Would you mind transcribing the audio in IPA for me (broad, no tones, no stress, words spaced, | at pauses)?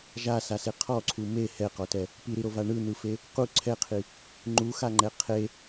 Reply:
ʒasase qʰɔǀʰu me hɛqɔtɛ | piɾiɾova ɳɯn̪ɯfe | qu ǀʰɛqʰi | ŋ͡ǃuxaŋ͡ǃɛ qʰe